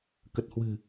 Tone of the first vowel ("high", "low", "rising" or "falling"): low